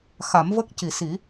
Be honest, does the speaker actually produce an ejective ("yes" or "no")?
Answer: no